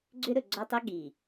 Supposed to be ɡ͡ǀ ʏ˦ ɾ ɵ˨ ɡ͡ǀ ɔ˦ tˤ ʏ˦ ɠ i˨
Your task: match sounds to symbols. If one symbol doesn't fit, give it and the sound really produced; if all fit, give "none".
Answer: none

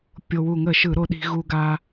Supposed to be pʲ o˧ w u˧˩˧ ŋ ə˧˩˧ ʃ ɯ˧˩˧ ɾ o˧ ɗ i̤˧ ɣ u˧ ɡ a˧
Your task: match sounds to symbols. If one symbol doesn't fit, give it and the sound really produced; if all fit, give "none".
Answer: none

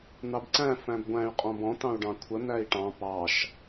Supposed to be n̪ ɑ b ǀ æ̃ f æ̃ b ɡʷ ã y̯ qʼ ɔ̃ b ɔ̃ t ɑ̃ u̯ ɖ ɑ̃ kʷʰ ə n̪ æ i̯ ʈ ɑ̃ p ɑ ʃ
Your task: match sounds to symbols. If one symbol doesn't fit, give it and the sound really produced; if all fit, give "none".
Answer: ã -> æ̃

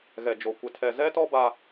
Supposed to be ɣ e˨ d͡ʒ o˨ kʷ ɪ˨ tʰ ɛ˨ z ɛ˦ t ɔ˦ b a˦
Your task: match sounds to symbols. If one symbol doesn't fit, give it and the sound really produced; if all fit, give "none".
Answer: e˨ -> ɛ˨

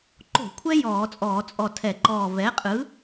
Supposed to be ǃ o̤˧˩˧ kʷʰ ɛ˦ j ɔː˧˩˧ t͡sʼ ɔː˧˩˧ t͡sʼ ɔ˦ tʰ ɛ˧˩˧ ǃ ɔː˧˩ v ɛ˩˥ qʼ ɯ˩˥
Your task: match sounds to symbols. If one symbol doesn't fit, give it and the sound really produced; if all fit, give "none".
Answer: ɔ˦ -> ɔ˧˩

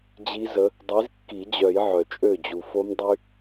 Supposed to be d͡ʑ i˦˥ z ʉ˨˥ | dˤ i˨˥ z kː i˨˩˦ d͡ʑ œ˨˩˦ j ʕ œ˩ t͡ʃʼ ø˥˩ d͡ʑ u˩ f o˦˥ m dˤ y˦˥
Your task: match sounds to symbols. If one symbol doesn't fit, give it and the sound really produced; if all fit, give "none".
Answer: ʉ˨˥ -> ə˨˥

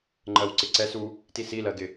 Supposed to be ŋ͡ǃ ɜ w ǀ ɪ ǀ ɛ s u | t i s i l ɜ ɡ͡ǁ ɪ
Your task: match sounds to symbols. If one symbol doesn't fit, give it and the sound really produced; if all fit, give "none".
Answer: ɡ͡ǁ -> ɡ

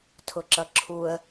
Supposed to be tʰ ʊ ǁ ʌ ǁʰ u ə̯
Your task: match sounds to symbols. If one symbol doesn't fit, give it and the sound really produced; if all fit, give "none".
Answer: none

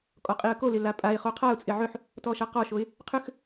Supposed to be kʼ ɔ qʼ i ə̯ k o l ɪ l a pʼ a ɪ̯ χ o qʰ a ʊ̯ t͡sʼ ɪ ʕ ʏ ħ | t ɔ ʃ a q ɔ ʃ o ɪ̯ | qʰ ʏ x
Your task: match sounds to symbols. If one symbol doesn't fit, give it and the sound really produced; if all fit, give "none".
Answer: none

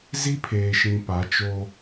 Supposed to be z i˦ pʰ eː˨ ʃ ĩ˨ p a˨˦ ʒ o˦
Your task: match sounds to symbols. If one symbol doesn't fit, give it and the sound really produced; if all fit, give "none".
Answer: ʒ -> t͡ʃ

